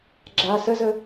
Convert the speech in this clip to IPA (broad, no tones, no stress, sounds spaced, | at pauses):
ɡ͡ǁ a s ə z ə